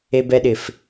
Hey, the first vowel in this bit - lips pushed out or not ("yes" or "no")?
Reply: no